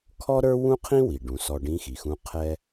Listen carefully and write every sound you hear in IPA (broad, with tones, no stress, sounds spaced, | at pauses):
kʰ ɔ˥ ɾ ə˞˥ w ũ˥ qʰ ĩ˥ w i˩ ɖ ũ˩˧ s ɔ˧ ɖ ĩ˧˥ x i˩ x ũ˧˥ qʰ ɛ˧